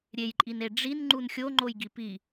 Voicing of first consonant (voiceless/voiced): voiced